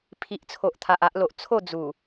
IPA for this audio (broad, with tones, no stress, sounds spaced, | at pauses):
pʰ i˨ ʔ t͡sʰ o˨ ʔ t̪ʰ a˨ ʔ a˦ ʔ l o˨ ʔ t͡sʰ o˥˧ d͡z u˨˩